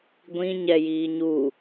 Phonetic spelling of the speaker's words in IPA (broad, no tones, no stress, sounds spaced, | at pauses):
ɡʷ ĩ ɲ ɛ j iː ɲ u